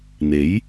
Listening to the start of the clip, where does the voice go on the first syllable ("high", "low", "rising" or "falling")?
rising